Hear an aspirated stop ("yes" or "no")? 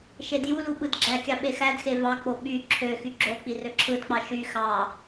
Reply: yes